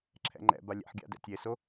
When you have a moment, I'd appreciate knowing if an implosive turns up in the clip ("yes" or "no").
no